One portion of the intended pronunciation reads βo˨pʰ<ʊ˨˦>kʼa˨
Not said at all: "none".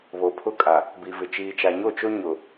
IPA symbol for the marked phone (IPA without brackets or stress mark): ʊ˦